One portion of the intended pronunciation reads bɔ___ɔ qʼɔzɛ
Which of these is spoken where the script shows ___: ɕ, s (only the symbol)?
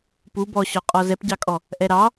ɕ